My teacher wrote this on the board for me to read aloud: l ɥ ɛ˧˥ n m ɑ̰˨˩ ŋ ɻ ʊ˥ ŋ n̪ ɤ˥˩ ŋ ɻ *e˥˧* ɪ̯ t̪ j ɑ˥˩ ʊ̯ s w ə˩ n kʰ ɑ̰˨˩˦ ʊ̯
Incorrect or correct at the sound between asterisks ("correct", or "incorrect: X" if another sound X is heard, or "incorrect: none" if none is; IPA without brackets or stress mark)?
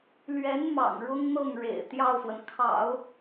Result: incorrect: ḛ˨˩